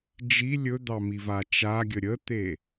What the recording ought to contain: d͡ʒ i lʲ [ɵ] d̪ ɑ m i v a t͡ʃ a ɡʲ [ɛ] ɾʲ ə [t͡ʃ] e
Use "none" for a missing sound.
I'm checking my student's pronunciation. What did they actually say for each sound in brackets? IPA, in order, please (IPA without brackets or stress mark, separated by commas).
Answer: ɵ, ə, t̪